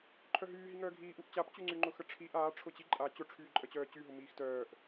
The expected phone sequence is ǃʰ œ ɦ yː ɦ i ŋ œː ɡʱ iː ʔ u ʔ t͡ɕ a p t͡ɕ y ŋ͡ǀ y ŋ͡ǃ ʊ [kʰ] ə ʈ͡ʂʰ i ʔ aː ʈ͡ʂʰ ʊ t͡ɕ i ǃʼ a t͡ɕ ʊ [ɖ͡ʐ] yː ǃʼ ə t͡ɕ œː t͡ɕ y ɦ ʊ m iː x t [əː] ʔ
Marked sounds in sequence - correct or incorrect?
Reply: incorrect, incorrect, incorrect

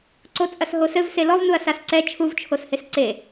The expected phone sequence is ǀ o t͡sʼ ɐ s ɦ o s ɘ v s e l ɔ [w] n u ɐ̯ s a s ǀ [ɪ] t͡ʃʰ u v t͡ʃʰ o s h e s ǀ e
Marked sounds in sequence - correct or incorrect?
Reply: incorrect, incorrect

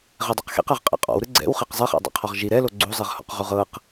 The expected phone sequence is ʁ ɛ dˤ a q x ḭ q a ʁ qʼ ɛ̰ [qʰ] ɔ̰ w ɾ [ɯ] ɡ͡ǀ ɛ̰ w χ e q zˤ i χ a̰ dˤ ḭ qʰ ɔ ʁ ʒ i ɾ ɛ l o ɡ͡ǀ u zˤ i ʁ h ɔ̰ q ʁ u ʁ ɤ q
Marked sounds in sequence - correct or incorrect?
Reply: incorrect, correct

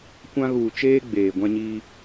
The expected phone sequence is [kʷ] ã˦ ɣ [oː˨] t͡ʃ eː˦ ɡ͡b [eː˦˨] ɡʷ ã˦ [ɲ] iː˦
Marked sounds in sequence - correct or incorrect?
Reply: correct, incorrect, incorrect, correct

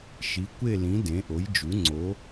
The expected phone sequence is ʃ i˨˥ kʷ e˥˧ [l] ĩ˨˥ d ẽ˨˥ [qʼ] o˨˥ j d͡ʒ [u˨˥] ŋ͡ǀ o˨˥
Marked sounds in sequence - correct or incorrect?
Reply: correct, incorrect, correct

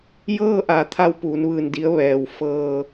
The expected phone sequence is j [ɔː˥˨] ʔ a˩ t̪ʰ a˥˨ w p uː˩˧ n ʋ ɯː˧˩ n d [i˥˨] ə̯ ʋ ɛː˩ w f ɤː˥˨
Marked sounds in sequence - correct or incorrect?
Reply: incorrect, incorrect

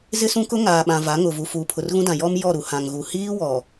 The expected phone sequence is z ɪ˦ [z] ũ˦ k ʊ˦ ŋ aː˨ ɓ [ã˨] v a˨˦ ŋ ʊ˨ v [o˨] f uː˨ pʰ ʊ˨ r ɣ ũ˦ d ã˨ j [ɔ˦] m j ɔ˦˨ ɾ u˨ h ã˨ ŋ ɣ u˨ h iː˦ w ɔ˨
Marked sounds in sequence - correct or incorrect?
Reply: incorrect, correct, incorrect, correct

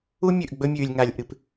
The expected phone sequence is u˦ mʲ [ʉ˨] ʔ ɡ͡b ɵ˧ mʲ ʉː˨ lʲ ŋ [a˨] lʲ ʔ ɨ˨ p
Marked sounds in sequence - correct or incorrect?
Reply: correct, correct

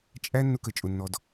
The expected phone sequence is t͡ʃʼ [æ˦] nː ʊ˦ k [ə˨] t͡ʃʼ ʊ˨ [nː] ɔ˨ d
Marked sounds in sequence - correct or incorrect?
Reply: correct, correct, correct

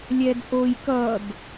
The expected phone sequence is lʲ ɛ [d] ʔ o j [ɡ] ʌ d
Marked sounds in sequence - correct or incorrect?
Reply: correct, incorrect

